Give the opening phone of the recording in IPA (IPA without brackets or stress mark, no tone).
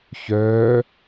ç